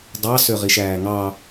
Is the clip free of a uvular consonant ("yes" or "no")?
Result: no